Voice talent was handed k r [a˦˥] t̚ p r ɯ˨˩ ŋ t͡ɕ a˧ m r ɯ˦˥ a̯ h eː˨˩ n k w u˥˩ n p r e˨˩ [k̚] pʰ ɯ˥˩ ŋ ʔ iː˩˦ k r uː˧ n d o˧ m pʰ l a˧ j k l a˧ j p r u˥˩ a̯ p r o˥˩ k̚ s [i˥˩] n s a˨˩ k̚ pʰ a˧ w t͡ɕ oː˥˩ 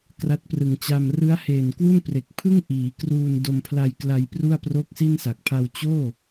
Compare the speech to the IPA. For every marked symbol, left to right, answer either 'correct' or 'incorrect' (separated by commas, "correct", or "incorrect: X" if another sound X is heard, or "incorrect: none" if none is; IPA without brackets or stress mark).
correct, correct, correct